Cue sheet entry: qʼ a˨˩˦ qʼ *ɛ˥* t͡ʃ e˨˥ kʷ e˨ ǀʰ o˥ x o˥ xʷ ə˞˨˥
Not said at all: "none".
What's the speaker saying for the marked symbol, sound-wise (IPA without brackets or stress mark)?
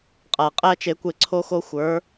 æ˥